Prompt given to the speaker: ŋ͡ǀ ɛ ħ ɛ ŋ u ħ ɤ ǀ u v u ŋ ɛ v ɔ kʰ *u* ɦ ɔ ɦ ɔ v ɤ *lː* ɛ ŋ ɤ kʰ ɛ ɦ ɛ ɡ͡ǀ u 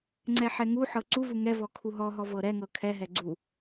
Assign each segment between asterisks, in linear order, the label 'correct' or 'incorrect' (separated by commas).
correct, incorrect